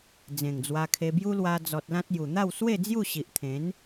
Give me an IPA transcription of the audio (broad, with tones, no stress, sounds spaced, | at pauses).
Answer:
d͡z ẽ˨˩ ŋ d͡z w a˧ kʰ e˧ b j u˦ l w a˧ d͡z ɔ˨ t̚ l ã˦ t̚ j u˨˩ n̪ a˥˧ w s w e˥˧ d͡z j u˥˧ ɕ i˨ ʔ t̪ʰ ẽ˨˦ n